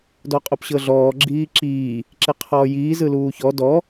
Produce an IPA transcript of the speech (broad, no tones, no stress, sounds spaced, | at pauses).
d ɔ qʼ o p ɕ ɤ ɮ ɔː ɡ͡ǁ iː ǁ iː | ǁ e qʰ ɔː j iː z ɯ l uː ç ɔ d ɔ